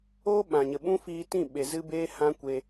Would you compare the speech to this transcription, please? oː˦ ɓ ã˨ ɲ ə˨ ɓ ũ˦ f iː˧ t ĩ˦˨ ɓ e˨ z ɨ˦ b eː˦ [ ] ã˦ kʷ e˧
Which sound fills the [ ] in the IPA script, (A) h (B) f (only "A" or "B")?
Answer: A